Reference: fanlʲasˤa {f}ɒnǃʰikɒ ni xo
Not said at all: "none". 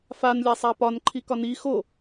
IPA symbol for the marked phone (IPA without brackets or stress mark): p